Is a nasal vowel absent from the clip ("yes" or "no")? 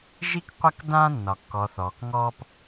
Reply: no